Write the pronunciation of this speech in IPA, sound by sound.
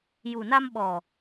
j u˨˩ n a˧ m ɓ ɔ˨˩

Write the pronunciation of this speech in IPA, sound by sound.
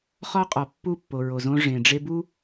χ ɒ˦ qʼ ɒ˨ pː u˦˨ pː o˨ ɹ o˨ z õ˦ ʐ ẽ˨ ɖ͡ʐ e˦ b u˦

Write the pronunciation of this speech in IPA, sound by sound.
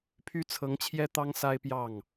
pʰ y˥ t͡sʰ ɤ˧˥ ŋ t͡ɕʰ j ɛ˥ t̪ ɑ˥ ŋ s a˥ ɪ̯ p j ɑ˥˩ ŋ

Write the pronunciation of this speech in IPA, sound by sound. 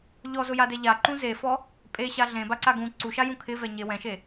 ʎ ɔ z ʊ j a d ɛ ʎ a ǃ ũ z e f ɔ | pʼ e ɕ a ɮ ẽ b a ǀ a ɡ ũ ǀ u ʃ a j ũ kʰ ɪ v ɛ ɲ e w ɛ̃ ʃ e

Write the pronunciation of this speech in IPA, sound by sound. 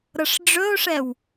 ɾ ɤ ʂ ɖ͡ʐ ɵ o̯ ʂ ɛ w

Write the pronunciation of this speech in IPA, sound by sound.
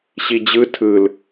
ɕ i d͡ʑ ɯ tʰ ɯ l

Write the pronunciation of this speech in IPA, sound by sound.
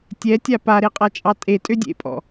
tʲ ɛ tʲ a p a ɾ e qʼ a t͡ʃʼ ɑ tʼ e tʼ ø dʲ ḛ pʼ ɔ̰

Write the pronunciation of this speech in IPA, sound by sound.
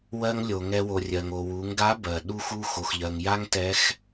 w ɜ˧ ŋ lʲ o˩ ŋ ɛ˧ w o˩ rʲ ɜ˩ ŋ o˩ w u˩˧ ŋ ɡ a˧˥ b ɜ˩ ɗ u˧ x u˧ x o˩ x ʎ ɜ˩ ŋ j a˥ ŋ t ɛ˧˥ x

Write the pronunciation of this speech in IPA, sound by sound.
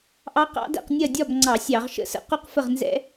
ʔ ɑ˦˥ q ɑ̰˦˥ d ɛ̰˥˨ q nʲ ɜ˥˨ dʲ ɒ˥˨ b ŋ͡ǀ ɑ˧˩˧ sʲ ɑ˧˩˧ ʁ ʃ ə̰˥˨ s ə̰˥˨ q u˥˨ q f ə˥˨ ʁ n z ɛ̰˦˥

